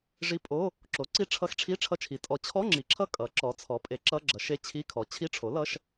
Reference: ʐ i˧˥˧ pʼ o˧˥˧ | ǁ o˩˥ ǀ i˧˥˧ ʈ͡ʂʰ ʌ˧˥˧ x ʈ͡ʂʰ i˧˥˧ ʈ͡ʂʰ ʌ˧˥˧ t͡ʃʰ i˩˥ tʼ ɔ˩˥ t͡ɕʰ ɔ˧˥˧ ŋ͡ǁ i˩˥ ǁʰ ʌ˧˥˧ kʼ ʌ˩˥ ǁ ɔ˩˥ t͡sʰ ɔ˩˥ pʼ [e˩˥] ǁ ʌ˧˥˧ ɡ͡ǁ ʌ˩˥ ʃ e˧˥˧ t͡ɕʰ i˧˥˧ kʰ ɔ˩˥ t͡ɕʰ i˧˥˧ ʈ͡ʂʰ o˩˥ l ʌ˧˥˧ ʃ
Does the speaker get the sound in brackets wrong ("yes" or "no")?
no